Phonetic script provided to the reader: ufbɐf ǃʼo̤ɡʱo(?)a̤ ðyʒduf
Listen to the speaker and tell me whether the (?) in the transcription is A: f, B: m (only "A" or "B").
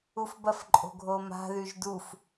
B